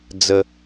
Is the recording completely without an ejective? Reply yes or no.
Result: yes